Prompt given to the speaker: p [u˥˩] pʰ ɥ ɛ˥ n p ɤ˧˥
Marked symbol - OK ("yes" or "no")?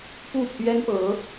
yes